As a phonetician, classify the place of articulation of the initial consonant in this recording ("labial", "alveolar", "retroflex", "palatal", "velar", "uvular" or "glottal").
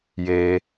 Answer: palatal